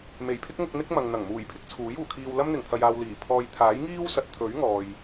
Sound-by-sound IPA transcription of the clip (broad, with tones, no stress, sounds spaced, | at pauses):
m e˨˩ j pʰ ɪ˥ k̚ ŋ ʊ˧ k̚ n̪ ɪ˥ k̚ m ɐ˨ ŋ n̪ ɐ˨˩ ŋ m uː˨˩ j pʰ ɪ˥ k̚ t͡sʰ uː˨˥ j uː˨˩ kʰ iː˧ w l ɐ˥ m n̪ ɪ˨˩ ŋ t̪ʰ ɐ˨ j aː˨ w l iː˨˩ pʰ ɔː˧ j t̪ʰ aː˨˥ j ŋ iː˥ w s ɐ˨ t̚ t̪ʰ ɵ˨˥ ɥ ŋ ɔː˨ j